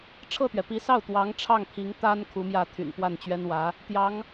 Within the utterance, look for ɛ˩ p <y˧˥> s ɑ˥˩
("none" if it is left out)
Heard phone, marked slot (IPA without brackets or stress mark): i˧˥